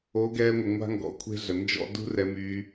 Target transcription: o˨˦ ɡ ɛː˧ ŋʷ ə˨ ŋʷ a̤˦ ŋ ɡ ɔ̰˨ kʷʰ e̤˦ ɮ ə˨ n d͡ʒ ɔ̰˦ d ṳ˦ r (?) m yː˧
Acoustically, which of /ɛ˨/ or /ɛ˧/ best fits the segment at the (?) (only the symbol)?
ɛ˧